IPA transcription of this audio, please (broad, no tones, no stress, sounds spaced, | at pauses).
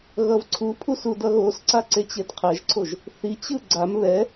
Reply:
ɣ ʌ v ǀʰ u pʰ u s u d ʌ ɣ o s ǀ a ǀ e t͡ɕ e d qʰ ɛ ʒ ǀʰ o ʒ | θ i t͡ɕ ɯ ɡ͡ǀ a m β ɛ